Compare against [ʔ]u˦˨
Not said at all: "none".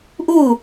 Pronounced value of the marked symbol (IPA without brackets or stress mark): ʔ